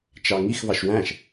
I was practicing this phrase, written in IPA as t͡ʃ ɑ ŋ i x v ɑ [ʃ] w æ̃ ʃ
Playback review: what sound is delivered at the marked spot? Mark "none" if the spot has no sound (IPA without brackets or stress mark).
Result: ʃ